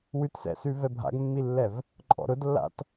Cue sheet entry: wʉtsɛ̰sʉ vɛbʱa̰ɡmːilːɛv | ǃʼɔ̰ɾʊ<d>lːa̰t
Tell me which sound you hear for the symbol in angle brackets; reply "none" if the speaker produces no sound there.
d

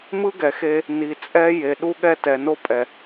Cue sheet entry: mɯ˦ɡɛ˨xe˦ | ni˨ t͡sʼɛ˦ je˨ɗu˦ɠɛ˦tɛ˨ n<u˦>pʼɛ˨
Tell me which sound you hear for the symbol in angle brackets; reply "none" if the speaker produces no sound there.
o˦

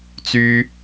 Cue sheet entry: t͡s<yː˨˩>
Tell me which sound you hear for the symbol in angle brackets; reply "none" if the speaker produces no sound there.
yː˥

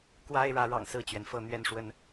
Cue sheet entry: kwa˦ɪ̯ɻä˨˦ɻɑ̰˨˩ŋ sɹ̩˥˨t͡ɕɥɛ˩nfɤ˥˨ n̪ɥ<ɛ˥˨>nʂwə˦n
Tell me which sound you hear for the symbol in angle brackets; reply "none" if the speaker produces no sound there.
ɛ˥˨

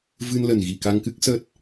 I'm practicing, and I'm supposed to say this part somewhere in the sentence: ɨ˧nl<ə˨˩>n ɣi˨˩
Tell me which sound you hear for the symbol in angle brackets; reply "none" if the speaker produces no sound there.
ə˨˩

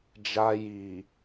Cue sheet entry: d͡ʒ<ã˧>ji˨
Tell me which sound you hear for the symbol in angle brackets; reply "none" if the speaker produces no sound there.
a˧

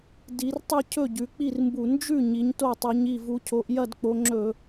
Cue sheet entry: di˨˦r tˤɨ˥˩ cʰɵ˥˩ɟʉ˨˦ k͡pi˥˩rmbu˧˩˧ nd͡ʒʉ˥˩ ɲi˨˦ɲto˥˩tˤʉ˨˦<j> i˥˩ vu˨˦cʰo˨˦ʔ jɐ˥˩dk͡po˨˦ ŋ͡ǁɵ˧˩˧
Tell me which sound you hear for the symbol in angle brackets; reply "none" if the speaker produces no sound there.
ɲ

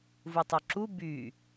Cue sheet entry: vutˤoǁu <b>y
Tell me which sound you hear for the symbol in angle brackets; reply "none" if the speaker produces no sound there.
b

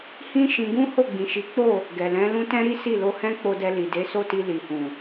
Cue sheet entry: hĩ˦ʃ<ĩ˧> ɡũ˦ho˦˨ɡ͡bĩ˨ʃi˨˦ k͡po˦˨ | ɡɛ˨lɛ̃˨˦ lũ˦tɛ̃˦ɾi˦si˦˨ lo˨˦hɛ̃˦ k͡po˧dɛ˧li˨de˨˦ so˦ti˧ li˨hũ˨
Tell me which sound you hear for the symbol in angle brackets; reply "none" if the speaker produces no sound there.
ĩ˧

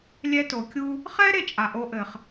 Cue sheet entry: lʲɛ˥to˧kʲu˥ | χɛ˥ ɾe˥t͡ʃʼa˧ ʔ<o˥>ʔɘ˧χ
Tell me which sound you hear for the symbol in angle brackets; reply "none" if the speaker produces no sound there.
o˥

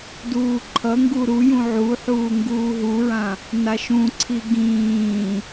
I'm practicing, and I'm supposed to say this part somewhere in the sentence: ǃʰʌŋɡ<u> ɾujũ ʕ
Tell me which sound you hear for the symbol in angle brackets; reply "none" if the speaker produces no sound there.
u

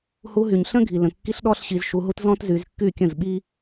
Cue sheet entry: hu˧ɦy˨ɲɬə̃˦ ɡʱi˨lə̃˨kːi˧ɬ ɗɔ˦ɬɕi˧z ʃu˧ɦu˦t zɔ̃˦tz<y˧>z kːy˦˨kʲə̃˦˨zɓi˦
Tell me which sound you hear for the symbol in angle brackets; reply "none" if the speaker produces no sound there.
y˧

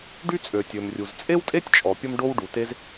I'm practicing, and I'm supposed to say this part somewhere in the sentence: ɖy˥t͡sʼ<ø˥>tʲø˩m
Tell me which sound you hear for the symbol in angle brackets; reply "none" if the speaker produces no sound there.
ø˩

